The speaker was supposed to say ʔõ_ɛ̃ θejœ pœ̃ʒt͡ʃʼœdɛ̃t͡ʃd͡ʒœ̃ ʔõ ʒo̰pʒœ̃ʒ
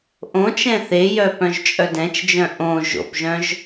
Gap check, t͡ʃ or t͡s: t͡ʃ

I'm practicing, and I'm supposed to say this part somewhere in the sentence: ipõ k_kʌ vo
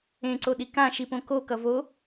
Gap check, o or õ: o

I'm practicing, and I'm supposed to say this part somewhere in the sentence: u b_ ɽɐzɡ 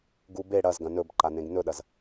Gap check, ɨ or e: e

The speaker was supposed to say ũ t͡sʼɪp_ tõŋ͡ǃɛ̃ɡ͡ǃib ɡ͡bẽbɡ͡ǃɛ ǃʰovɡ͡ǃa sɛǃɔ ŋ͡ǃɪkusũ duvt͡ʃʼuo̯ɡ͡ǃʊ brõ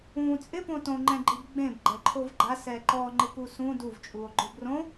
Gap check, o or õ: õ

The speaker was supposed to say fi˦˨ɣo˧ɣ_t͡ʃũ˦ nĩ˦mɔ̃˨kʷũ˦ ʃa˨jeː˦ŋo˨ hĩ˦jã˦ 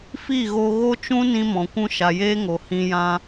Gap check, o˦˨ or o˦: o˦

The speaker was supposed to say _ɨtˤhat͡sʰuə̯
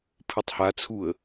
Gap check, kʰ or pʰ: pʰ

